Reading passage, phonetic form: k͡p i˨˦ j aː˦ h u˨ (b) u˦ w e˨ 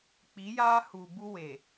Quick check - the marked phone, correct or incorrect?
correct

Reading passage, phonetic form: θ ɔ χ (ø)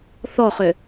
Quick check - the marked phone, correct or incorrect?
correct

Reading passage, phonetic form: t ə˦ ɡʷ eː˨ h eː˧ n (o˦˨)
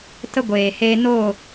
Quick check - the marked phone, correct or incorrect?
correct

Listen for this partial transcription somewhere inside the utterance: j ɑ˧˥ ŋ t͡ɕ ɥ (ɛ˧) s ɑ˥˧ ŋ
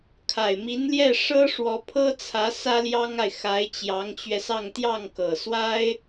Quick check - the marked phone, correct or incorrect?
correct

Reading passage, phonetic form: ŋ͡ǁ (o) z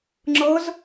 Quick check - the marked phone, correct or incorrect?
incorrect: ɤ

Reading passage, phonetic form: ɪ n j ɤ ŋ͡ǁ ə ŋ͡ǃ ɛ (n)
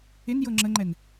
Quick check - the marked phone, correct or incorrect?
correct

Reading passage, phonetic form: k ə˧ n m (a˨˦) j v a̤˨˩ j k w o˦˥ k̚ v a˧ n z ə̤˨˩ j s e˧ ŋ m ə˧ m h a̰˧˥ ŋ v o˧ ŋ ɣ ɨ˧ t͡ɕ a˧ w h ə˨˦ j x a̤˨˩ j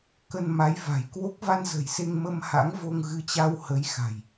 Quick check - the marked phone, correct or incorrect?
correct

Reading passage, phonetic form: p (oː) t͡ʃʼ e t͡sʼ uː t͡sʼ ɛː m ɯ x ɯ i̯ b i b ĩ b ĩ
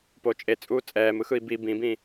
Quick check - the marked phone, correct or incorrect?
incorrect: o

